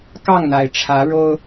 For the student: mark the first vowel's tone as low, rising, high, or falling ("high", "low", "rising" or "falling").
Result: falling